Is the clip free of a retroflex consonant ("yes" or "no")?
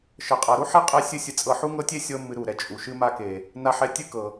yes